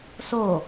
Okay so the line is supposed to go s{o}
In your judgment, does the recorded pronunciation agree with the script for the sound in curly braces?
yes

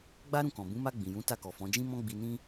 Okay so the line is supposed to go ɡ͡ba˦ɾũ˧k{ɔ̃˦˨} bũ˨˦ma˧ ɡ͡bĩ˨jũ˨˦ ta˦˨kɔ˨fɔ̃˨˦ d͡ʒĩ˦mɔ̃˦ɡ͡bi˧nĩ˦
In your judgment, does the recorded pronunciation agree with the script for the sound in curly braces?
no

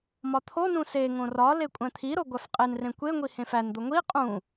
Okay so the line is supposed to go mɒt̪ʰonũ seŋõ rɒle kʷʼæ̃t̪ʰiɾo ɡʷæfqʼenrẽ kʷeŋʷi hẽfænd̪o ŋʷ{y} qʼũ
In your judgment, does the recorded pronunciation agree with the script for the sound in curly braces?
no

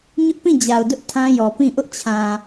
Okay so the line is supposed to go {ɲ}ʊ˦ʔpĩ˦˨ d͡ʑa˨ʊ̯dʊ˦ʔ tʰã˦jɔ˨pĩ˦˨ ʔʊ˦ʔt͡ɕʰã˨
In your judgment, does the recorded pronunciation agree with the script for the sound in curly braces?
yes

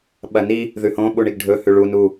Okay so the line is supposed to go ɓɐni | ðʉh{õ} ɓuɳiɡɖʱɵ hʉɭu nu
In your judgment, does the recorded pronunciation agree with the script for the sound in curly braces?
yes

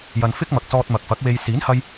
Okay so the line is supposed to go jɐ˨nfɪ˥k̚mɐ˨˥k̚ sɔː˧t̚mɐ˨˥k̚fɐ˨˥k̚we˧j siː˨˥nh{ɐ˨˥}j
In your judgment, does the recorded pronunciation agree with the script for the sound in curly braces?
no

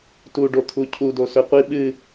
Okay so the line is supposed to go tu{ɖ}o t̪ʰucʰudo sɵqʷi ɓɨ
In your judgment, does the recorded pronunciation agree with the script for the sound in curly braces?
yes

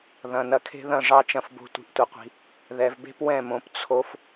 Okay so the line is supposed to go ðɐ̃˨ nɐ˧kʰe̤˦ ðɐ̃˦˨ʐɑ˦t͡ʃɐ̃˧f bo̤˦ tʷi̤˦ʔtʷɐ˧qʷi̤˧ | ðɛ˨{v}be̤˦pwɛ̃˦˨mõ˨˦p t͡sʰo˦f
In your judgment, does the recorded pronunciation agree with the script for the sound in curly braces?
yes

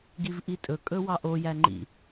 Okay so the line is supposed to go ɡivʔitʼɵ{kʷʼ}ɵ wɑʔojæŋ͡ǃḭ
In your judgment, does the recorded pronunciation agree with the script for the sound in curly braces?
no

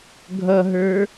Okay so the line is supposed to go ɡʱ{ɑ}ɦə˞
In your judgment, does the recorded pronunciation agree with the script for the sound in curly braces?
no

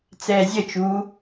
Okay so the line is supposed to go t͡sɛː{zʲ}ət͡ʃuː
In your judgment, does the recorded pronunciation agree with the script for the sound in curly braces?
yes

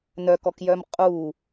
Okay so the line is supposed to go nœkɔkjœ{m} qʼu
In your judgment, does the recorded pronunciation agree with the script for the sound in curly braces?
yes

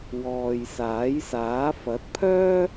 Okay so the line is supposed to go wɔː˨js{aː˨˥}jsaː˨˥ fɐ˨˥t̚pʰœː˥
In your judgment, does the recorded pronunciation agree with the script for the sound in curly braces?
yes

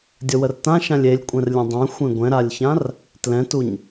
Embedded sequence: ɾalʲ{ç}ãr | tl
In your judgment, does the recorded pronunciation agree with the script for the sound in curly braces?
yes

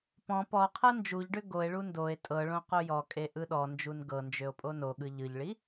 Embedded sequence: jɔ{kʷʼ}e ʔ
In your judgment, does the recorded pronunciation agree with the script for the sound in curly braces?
no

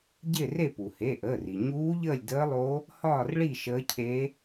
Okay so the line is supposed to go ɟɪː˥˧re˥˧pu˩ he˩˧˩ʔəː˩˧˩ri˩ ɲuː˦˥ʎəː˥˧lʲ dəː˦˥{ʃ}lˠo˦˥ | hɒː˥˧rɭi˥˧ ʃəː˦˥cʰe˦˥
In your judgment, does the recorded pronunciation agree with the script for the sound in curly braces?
no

